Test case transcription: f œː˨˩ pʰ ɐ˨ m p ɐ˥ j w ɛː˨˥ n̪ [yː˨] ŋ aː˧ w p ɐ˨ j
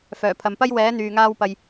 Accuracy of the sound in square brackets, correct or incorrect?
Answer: correct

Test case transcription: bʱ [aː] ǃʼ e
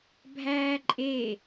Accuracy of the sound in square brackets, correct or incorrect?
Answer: incorrect: æː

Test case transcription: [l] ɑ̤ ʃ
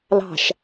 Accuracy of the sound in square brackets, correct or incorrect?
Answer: correct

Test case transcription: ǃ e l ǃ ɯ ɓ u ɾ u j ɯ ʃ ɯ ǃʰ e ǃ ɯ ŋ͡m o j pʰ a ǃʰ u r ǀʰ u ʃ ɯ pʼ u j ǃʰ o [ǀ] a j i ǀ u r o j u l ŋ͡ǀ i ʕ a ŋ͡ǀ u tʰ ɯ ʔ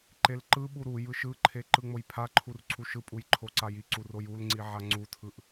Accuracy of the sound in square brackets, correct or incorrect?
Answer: correct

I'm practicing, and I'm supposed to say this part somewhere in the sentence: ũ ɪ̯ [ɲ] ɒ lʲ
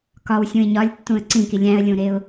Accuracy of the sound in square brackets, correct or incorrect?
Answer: correct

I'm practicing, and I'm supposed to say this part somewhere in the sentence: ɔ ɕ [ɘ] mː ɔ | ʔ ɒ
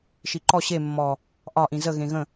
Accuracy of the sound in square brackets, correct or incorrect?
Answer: incorrect: e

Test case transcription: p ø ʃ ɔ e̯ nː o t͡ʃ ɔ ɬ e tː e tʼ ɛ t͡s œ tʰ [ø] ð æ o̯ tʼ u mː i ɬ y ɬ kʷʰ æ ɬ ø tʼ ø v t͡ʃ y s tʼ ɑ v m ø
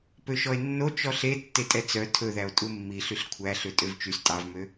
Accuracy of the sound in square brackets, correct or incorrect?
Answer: incorrect: ɵ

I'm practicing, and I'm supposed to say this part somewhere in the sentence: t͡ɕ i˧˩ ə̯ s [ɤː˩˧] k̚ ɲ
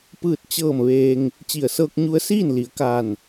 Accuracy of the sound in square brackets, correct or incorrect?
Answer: incorrect: ɤː˧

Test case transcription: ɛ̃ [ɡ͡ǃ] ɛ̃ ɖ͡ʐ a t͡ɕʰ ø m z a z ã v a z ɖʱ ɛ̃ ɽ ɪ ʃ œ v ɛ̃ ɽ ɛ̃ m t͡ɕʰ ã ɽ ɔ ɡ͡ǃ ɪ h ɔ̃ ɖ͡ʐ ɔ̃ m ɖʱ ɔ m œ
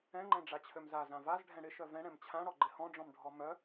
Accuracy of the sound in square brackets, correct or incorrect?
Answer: incorrect: ŋ͡ǃ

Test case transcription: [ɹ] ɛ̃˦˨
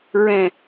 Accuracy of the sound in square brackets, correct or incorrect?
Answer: correct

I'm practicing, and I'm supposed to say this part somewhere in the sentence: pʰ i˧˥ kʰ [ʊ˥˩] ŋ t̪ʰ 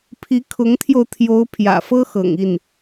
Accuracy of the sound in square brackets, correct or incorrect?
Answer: incorrect: ʊ˧˥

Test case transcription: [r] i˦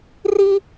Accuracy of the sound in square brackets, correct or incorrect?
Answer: correct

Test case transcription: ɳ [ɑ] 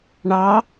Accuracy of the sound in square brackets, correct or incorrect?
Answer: correct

